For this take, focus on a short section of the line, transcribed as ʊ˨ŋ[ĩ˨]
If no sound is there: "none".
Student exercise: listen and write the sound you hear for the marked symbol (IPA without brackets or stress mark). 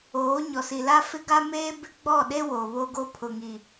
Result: i˨